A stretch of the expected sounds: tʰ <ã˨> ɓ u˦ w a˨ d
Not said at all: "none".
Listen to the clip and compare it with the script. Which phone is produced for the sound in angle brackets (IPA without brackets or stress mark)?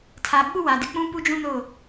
a˨